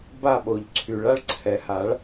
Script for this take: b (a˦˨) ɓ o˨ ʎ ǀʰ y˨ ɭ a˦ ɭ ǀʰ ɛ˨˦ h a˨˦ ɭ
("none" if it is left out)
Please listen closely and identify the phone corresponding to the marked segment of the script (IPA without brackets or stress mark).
a˦˨